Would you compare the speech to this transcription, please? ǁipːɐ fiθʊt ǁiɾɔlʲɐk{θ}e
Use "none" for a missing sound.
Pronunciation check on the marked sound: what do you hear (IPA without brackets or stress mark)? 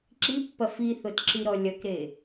ɾ